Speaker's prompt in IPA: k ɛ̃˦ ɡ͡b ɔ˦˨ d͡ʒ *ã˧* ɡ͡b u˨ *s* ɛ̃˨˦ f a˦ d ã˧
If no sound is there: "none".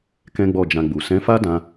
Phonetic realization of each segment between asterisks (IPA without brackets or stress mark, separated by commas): ã˧, s